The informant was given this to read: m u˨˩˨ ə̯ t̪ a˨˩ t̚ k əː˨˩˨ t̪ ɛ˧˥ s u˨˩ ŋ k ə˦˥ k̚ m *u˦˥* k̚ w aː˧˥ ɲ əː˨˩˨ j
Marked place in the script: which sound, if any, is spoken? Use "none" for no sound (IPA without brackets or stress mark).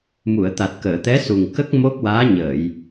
o˦˥